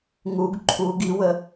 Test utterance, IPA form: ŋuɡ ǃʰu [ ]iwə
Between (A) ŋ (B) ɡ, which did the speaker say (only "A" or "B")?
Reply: B